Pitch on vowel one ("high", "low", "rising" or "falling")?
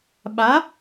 rising